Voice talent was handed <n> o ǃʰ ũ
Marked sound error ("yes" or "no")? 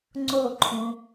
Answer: yes